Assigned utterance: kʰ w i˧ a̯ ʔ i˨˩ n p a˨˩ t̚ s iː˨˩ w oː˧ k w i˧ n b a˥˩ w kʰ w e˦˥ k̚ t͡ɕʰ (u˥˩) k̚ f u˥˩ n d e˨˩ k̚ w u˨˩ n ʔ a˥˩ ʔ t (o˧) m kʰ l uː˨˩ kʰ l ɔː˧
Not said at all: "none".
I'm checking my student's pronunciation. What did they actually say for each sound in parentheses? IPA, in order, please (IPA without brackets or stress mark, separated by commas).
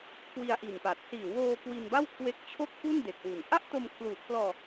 o˥˩, o˧